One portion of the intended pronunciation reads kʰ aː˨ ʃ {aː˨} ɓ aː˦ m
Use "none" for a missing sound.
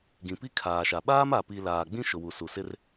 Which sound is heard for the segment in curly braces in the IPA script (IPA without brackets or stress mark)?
a˨